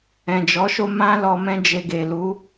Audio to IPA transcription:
ɛ̃˨ d͡ʒ ɔ˨˦ ʃ o˦ m ã˦ l ɔ˧ m ɛ̃˦ d͡ʒ e˧ ɡ e˨ l u˨˦

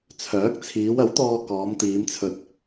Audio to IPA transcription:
t͡sʰ œː˨˥ k̚ t͡sʰ iː˨˧ w ɐ˨˥ w t̪ ɔː˧ k ɔː˨˧ m t̪ iː˨˧ m t͡sʰ ɵ˧ t̚

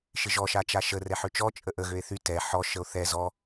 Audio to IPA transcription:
ʃ ɪ ʒ ɔ ʃ a t͡ʃ a ʃ ə r ɛ ħ ʏ t͡ʃ ɔ t͡ʃʼ ə ʔ ə ɣ ø e̯ θ y t ɛ ħ ɔ ʃ ə o̯ θ ɛ z ɔ

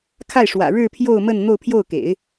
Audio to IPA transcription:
kʰ a˥˩ ɪ̯ ʂ w ä̰˨˩ ɻ ɻ̩˥˧ pʰ j o˥˧ ʊ̯ m ə˥˧ n n̪ o˥˧ ʊ̯ pʰ j o˥˩ ʊ̯ k ḛ˨˩˦ ɪ̯

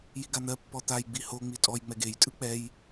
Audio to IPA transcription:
j i ɡ a n̪ ɜ pː ɔ t̪ a j ɡ͡b i h o ŋ͡m i tʼ ɔ j ŋ͡m ɛ ɡ e j tʼ ɯ k͡p ɛ j

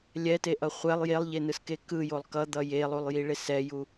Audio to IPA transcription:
lʲ ɛ t e ʔ ʌ χʷ ɛ lˠ j e lˠ ʎ e n ɯ s k e k ɯ j o lˠ k ʌ d̪ ʌ j e lˠ u lˠ j i ɭ e s ɛ j u

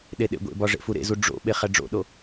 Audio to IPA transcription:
ɗ e ɗ ḛ ɡʷ ḛ b ɒ ʐ ḛ f u ɾ ḛ z u ɖ͡ʐ o̰ ɓ e χ æ ɖ͡ʐ o̰ ɗ o

